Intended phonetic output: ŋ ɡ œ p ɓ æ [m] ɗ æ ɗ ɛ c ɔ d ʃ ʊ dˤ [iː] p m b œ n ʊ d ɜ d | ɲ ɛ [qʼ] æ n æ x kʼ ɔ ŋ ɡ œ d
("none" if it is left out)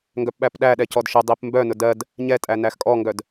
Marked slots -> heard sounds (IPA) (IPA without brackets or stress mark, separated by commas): p, i, tʼ